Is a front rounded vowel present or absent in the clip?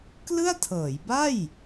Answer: absent